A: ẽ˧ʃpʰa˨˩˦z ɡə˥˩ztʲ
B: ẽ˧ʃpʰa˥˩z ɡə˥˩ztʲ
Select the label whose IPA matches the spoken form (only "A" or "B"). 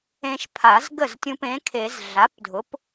A